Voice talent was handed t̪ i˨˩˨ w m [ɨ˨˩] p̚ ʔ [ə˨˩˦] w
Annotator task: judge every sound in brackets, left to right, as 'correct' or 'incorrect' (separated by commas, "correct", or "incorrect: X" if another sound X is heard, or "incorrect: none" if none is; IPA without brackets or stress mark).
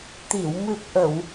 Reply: correct, incorrect: ə˨˩˨